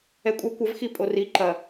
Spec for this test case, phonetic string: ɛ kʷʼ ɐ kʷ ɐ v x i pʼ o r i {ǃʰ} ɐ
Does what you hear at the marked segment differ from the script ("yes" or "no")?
yes